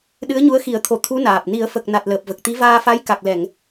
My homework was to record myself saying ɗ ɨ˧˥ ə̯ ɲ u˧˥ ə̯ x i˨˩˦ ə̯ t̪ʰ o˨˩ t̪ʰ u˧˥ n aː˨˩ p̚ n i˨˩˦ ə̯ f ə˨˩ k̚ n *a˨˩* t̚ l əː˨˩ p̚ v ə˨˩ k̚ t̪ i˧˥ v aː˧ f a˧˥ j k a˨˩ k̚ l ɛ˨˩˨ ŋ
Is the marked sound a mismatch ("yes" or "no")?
no